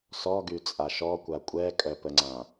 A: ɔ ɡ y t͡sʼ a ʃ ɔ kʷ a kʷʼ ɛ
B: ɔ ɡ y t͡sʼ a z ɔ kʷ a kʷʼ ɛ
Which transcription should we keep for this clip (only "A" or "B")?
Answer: A